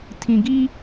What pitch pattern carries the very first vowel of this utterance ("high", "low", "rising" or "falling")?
low